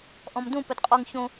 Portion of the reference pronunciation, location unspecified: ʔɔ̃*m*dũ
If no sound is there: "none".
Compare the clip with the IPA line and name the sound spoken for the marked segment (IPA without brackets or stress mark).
m